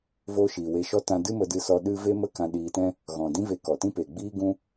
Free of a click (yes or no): yes